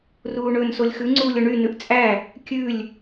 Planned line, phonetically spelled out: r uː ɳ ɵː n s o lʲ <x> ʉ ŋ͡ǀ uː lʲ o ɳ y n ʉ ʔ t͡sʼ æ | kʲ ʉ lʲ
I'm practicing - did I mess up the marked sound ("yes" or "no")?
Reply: no